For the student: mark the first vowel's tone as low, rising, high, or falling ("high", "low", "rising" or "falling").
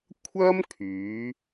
high